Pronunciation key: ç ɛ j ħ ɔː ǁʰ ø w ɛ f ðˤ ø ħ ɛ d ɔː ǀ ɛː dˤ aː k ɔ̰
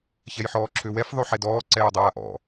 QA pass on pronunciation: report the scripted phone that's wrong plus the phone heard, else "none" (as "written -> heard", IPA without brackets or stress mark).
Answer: k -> ʔ